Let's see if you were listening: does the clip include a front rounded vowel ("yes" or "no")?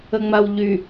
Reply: yes